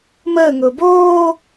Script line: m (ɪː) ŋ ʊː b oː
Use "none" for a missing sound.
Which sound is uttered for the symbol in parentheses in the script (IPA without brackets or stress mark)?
əː